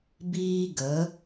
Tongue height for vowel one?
high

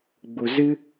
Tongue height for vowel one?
high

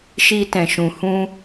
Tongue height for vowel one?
high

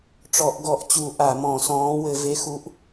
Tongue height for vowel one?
mid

